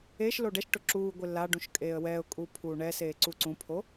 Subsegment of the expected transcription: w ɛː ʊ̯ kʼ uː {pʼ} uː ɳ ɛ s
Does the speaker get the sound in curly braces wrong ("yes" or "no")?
yes